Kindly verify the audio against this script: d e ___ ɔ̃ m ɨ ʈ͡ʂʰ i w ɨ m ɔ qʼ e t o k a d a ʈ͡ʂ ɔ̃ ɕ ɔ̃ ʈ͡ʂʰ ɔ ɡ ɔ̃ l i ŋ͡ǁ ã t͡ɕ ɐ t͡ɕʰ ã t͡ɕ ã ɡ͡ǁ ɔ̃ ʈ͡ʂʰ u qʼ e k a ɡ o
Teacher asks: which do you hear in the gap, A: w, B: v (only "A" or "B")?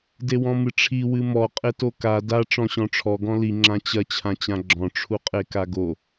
A